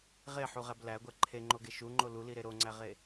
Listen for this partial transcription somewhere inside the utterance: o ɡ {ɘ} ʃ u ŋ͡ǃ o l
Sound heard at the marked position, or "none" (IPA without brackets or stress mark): e